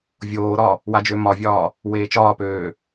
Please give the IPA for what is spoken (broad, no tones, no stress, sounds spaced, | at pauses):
vʲ oː ɾ ɒ | w a d͡ʒ ø m ɒ vʲ ɒː | w eː t͡ʃ ɒː p øː